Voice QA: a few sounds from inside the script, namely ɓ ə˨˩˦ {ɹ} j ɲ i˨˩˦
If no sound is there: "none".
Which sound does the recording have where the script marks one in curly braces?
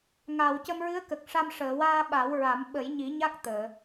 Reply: none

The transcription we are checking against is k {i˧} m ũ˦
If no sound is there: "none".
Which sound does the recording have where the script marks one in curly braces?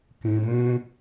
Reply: ĩ˧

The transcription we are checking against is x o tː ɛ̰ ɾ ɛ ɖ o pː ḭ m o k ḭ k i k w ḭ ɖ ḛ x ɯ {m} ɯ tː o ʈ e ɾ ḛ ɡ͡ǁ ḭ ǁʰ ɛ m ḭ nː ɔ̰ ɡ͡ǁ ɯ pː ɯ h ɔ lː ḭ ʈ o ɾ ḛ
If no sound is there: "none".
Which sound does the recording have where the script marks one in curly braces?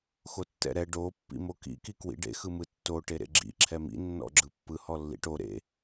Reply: m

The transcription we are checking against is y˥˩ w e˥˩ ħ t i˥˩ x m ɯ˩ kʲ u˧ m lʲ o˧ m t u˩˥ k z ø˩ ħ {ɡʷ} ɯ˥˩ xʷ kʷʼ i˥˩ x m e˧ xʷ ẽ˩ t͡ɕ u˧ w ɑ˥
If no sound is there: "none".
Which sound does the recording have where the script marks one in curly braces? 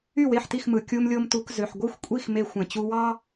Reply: ɡʷ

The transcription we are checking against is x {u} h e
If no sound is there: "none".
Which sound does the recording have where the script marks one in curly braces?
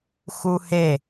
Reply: u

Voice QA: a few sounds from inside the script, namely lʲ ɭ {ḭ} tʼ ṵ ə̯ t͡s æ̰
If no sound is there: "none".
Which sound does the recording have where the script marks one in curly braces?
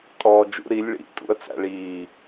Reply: ḭ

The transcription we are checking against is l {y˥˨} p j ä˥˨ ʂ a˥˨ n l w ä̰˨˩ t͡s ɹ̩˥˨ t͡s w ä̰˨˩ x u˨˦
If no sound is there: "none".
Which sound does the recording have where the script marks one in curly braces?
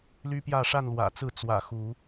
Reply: y˦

